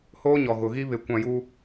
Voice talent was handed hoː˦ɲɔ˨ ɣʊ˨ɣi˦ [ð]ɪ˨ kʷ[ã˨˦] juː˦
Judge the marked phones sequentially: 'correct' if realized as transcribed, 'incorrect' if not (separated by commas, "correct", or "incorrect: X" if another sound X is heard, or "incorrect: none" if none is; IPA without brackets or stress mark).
incorrect: β, incorrect: ã˨